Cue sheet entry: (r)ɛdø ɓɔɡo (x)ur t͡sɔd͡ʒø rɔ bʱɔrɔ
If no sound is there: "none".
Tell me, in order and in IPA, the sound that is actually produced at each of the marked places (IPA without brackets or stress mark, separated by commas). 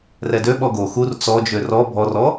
r, x